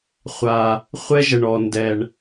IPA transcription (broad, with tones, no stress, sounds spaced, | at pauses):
χʷ a˧ | χʷ ɛ˥ ʒ ə˧ ɳ ɔ˧ n d ɛ˧ ɳ